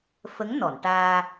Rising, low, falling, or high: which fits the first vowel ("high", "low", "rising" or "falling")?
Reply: rising